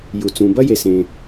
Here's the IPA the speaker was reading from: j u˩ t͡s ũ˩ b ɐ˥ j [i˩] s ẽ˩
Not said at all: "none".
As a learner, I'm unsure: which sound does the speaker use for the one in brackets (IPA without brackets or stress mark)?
e˩